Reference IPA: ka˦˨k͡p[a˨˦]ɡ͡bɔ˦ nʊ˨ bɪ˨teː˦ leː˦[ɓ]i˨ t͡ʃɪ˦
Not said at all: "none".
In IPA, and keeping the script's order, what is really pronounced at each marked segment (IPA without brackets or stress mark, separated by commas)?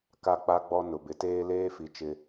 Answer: a˦, f